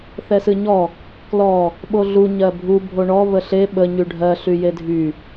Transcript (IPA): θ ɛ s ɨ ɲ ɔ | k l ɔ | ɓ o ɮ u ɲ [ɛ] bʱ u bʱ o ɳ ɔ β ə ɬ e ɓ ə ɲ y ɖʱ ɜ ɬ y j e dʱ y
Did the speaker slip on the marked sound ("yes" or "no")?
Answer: yes